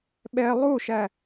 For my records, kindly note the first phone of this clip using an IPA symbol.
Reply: ɓ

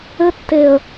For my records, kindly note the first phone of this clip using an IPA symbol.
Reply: ɘ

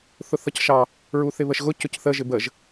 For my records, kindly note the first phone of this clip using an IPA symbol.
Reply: θ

